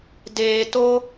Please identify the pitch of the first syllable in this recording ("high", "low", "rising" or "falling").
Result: low